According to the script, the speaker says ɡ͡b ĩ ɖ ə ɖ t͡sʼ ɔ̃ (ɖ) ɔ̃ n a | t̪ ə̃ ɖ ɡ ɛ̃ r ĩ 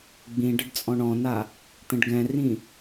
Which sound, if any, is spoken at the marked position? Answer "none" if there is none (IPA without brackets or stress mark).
ɳ